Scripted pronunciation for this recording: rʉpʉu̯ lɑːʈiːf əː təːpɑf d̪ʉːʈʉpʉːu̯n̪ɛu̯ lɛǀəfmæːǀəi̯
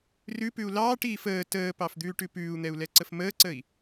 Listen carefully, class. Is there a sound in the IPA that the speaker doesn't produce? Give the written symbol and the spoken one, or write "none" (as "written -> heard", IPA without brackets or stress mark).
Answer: æː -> əː